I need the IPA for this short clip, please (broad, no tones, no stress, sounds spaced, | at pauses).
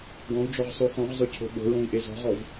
ɡ ɔ̃ u̯ d͡ʒ ɔ ʁ sˤ o x ɔ̃ ʁ zˤ ɵ cʰ o̤ ɓ o̤ ɹ õ i̯ ʔ e z ɔ̤ ʁ ɔ v